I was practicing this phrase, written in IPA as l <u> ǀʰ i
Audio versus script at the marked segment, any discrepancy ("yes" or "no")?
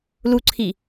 no